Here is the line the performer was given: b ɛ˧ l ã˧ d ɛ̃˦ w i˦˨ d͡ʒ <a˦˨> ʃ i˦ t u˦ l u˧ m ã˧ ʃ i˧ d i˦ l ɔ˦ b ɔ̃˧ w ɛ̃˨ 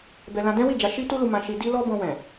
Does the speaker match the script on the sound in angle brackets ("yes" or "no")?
no